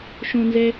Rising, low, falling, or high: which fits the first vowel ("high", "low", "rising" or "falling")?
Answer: low